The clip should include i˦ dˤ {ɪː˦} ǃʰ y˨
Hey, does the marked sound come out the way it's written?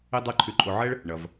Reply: yes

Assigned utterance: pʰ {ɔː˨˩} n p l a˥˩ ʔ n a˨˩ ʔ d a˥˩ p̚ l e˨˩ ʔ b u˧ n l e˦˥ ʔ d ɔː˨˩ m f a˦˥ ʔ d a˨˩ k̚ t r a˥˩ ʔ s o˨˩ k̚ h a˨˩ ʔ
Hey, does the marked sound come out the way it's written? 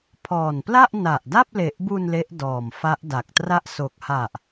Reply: yes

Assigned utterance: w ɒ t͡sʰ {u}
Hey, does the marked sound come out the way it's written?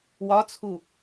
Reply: yes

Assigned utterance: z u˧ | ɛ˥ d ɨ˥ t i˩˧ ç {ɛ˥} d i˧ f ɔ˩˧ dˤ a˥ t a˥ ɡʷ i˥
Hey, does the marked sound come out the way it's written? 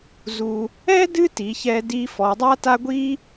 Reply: no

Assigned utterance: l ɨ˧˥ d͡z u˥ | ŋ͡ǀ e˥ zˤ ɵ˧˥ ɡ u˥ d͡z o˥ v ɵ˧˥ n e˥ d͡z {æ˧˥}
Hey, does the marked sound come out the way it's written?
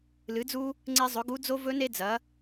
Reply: no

